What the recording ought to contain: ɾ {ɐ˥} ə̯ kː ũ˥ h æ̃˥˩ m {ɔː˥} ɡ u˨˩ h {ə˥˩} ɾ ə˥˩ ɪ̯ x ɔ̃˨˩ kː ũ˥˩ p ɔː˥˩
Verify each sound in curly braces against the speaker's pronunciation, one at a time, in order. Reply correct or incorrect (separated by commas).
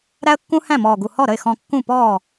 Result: incorrect, incorrect, incorrect